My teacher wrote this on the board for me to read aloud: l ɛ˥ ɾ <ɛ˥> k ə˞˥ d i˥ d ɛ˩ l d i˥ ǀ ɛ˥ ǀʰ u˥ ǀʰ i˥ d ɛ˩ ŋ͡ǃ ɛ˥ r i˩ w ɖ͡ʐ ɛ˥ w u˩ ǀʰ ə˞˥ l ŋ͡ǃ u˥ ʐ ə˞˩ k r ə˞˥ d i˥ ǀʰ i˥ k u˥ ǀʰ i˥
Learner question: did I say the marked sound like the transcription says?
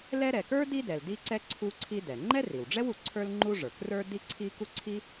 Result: no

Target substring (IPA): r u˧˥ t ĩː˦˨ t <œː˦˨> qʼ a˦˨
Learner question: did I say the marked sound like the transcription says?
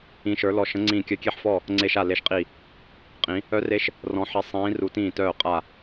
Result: yes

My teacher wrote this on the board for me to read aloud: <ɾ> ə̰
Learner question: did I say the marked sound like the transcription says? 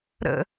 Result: yes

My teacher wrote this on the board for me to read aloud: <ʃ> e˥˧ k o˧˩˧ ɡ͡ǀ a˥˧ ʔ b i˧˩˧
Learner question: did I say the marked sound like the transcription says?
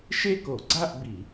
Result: yes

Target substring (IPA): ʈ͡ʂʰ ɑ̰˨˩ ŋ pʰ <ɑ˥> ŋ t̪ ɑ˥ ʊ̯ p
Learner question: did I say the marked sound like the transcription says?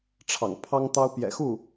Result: yes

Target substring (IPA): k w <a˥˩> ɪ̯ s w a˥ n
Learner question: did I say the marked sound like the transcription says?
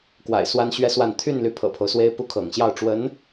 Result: no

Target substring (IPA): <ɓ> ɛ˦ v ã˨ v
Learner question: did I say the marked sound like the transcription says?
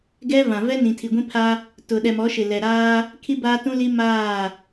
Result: no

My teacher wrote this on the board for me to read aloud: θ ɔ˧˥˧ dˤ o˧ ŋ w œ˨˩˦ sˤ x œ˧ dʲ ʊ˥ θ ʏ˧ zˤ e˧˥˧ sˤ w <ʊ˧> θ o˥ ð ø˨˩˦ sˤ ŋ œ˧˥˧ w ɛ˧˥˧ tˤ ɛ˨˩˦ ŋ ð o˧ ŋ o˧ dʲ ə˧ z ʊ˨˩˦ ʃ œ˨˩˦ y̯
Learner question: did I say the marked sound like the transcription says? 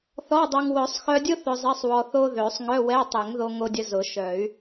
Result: no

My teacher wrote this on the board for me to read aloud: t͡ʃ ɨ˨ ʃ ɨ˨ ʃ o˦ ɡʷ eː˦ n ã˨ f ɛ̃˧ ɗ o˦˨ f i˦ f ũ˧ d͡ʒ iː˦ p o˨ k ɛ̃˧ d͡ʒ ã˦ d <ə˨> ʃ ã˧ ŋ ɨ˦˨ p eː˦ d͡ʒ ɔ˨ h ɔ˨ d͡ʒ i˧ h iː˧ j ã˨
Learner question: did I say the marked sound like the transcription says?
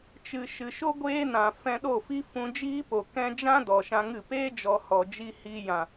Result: no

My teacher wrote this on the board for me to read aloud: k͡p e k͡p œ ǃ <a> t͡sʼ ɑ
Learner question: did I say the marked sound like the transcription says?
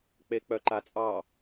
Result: yes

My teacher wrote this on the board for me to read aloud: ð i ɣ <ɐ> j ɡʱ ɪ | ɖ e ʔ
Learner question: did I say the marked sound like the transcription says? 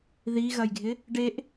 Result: yes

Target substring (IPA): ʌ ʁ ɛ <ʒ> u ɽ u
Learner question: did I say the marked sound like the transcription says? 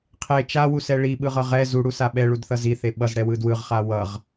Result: no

